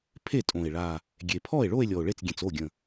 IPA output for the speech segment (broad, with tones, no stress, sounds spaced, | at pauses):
pʰ e˥˩ tʼ õ˨˩ e̯ ɭ a˨˩ | ɡʲ e˨˩ pʰ ɔ˥˩ e̯ ɭ o˥˧ e̯ lʲ ɔ˨˩ o̯ ɭ e˥˩ t͡s ɡʲ ẽ˨˩ t͡s o˥˩ ɡʲ ə̃˨˩